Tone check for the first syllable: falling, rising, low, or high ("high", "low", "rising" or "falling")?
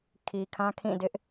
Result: low